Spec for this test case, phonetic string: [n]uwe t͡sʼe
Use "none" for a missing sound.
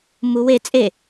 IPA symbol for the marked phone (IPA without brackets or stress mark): m